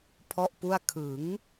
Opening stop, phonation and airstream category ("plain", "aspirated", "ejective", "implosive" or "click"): aspirated